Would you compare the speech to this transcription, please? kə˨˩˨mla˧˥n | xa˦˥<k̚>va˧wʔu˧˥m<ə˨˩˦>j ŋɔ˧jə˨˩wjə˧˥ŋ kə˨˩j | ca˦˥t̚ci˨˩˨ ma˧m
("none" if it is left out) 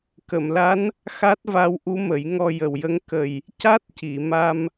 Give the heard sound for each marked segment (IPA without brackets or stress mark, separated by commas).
t̚, ə˨˩˦